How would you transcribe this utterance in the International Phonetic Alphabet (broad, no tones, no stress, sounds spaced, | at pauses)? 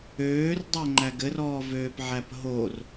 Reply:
øː r dˤ ɛ ŋ͡ǃ æ ɡ ɘ r ɔː v øː p ʕ æ p ɦ o r